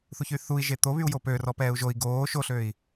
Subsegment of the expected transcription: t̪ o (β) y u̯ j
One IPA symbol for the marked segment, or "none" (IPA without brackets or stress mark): β